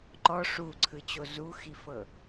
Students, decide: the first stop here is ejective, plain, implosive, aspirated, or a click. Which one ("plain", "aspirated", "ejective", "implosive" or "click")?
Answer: click